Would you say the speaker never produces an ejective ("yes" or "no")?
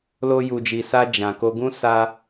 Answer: yes